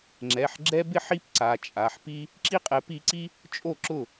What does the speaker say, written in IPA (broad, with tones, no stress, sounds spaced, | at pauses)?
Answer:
ŋ͡ǁ ɛ˩˧˩ ħ ɡ͡ǁ ɛ˥ b ɪ˥ ħ i˥ p ǀ a˩˧˩ t͡ʃʼ a˩˧˩ ħ p i˥ | ǁ i˥ qʼ ɛ˨˥ p i˨˥ ǀ i˥ | t͡ʃʼ o˥˩ ǁ ʊ˥˩